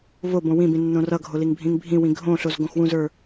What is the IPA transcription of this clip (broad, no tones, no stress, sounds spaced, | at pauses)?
v o b õ w ĩ b ĩ nː õ r ʌ ɡʱ o l i ŋ bʱ ĩ ŋ bʱ ĩ w ĩ ɡʱ õ ɬ o z ɡ õ x w ũ z ə˞